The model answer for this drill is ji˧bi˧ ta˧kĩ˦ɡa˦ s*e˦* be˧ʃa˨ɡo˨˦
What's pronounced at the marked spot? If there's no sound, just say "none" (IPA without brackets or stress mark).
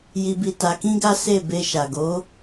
e˦˨